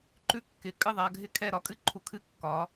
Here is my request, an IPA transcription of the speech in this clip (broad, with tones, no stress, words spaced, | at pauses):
ǃʉ˦ kːɪ˨˦ kʼɨ˥˨ðˤa˨˦ɡʱɪ˥˨kʰɛ˥˨ ɾɒ˨˦kʼɨ˦ǃʰu˨˦ kʰɨ˥˨kːɒ˨˦